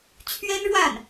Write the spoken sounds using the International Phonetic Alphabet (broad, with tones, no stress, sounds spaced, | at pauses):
t͡ɕʰ ɥ ɛ˥ n ɻ w a˥˩ n